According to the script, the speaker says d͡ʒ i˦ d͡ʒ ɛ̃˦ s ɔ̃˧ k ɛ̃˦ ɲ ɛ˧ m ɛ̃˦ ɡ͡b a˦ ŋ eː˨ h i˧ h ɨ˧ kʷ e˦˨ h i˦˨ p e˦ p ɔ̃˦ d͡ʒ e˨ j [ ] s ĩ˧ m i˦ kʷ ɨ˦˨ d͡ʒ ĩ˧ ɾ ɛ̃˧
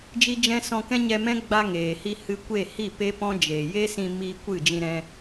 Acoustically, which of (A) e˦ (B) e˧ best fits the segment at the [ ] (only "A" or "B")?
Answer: A